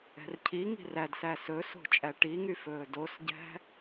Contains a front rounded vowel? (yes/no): yes